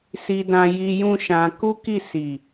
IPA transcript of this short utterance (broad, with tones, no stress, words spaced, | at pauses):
si˧dã˧ji˧ jũ˦ʃã˧ ku˦ki˦˨si˨